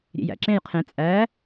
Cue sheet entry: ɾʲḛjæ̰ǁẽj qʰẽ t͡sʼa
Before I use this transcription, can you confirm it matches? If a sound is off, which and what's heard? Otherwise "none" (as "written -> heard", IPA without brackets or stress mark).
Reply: a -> æ